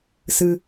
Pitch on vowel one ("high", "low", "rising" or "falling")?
low